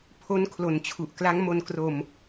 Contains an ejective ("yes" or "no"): no